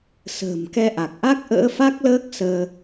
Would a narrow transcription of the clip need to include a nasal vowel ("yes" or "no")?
no